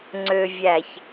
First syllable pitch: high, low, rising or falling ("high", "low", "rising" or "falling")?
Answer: low